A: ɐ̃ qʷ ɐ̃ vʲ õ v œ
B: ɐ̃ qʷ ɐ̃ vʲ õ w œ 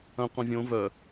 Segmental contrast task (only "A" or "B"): A